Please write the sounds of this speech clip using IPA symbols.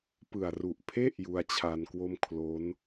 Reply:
pɯ˨˩a̯ru˨˩ʔpʰe˥˩ʔ ju˧a̯t͡ɕʰa˧nkwo˥˩m kʰlo˦˥n

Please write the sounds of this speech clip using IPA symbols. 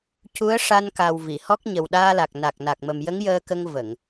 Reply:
cu˧˥ə̯ʂa˧nka˨˩w vi˨˩˨hɔ˦˥k̚ ɲə˨˩wɗaː˧la˨˩k̚ na˨˩k̚na˨˩k̚mə˨˩m jə˧˥ŋjəː˧kə˧ŋ və˨˩˨ŋ

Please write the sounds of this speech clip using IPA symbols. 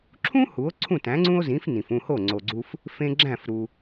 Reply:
ǁʰũ˥ hu˩˥o̯ǀʰũ˥˩ tæ̃˩˥ŋ͡ǀũ˥o̯zĩ˩˥f nĩ˩fũ˥˩ho˥˩ ŋ͡ǀo˩ɡ͡ǀu˧f | fẽ˧ ɡ͡ǁæ̃˥˩f ɾu˩

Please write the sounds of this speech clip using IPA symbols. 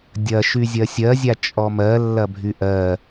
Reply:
dʲɐ ʃyzʲɜsʲɜzʲa t͡ʃʼɔmɜlːɐ bʱyʔɜ

